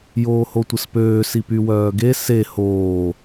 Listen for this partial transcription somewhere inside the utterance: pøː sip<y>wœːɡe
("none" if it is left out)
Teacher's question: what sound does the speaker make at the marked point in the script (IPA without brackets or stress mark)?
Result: y